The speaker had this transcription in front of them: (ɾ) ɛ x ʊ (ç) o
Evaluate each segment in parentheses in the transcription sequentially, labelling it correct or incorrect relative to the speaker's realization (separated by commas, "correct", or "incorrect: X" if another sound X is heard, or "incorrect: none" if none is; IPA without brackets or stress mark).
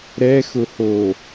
correct, incorrect: h